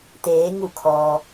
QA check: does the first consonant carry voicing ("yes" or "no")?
no